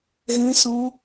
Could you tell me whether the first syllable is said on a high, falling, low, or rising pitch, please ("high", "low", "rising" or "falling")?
high